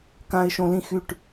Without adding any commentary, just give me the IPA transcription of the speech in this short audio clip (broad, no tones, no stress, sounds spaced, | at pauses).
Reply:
k ã ɪ̯ ʃ õ l ĩ x y ʈ